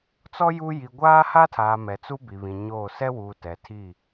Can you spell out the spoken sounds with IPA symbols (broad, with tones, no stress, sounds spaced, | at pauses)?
t͡s ɔ˦ j u˦ j i˨ ɡʷ aː˦ h a˦ tʰ aː˨ m ɛ˨ t͡s u˦ b i˨ β ĩ˨ ɲ oː˦˨ s ɛ˦ w uː˨ t ɛ˨ tʰ i˦˨